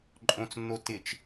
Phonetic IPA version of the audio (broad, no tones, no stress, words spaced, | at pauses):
ǃʼõt͡snːo tɪt͡ʃ